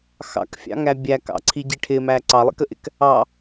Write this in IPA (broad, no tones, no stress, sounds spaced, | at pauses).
x ɑ̰ k fʲ ɑ̰ ŋ æ bʲ æ k ɑ̰ ǀʰ i ɟ i ʈʰ ɪ m æ ǀ ɑ lˠ ḭ k ə ʔ ɪ k | ɑ